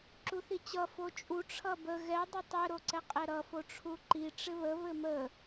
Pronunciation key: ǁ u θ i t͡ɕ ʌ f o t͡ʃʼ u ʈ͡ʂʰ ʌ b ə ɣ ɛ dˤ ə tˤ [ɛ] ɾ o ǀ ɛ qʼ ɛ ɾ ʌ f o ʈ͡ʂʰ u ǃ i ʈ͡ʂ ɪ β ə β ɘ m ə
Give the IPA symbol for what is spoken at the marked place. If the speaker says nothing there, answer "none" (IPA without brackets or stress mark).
ɘ